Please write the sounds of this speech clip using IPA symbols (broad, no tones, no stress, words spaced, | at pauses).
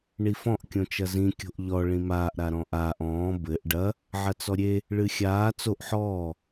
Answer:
ɳifɔ̃ʔ kʲõt͡ʃɐzĩ kʲo̤ʔʎɔ ɭĩmaːʔ ɾaɾɔ̃ʔaːʔ ɔ̃ː bɘʔ ɖɐ | ʕɐt͡sɔɾʲe | ɭɨxʲaː t͡soʔ ħɔː